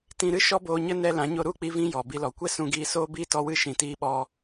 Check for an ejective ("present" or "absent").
absent